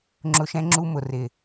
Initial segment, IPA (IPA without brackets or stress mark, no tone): ŋ͡ǁ